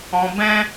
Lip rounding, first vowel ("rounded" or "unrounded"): rounded